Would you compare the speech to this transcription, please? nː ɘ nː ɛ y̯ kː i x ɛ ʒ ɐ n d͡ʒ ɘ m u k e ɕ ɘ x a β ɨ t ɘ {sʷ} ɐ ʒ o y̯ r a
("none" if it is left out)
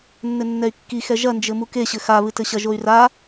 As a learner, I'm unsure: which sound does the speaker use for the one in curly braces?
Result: ɕ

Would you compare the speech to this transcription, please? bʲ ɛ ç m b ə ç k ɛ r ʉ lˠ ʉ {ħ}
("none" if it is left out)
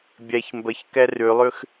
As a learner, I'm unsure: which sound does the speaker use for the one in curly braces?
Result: x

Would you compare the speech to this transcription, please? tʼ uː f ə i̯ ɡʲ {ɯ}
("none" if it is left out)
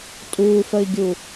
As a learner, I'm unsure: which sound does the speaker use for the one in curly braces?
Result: u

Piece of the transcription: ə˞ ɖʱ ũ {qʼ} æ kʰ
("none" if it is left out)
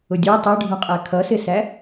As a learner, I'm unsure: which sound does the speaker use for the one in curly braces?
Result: qʼ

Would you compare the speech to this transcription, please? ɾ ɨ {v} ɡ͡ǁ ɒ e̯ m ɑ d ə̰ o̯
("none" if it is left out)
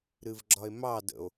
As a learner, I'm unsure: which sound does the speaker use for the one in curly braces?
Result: v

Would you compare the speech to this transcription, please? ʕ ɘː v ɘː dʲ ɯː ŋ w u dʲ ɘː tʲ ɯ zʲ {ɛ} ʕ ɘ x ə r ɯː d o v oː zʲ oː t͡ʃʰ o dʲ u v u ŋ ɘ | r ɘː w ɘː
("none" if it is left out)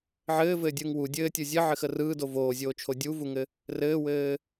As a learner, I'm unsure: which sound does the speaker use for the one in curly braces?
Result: ɘ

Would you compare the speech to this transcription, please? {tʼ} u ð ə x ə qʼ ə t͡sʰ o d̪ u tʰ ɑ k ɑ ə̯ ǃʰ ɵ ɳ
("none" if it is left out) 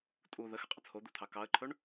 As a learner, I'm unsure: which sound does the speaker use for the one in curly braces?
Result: tʼ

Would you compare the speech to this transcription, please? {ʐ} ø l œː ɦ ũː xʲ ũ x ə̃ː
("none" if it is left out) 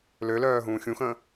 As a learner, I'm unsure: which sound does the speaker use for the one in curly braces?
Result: l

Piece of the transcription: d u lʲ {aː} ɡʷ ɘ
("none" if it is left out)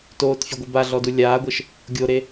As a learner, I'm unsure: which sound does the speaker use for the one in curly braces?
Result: aː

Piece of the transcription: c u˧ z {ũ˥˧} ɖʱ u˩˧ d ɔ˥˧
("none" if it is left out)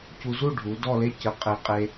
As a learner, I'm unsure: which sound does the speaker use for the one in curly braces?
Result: u˥˧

